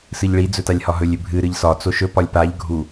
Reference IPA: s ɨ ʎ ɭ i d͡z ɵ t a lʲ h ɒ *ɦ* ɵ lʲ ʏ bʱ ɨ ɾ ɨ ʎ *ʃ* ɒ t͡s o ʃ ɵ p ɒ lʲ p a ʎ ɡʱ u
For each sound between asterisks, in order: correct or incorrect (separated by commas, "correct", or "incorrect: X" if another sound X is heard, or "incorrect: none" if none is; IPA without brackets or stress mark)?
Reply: correct, incorrect: s